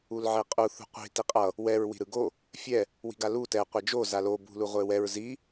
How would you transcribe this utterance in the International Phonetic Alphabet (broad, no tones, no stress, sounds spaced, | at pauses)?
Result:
u l ʕ e qʼ u θ ṳ qʷ i̤ t i qʼ ʌ | w ɛ ɹ w i̤ ɾ ɯ ɡ o | fʲ ɛ | w i̤ ɡ a l u t ɛ qʷ ɛ d͡ʒ o z a l o b ṳ l u ʁʷ e w ɛ ɹ z i